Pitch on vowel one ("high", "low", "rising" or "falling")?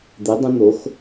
rising